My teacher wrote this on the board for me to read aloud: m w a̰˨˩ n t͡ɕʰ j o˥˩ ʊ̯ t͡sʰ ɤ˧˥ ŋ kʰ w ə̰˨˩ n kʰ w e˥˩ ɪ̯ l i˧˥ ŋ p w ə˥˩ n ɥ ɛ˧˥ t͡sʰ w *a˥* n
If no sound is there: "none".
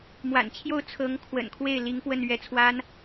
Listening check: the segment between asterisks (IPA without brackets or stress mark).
a˥